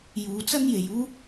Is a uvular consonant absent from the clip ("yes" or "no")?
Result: yes